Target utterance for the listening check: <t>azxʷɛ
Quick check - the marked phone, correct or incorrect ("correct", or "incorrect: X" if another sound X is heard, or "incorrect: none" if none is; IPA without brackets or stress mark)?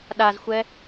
incorrect: ɗ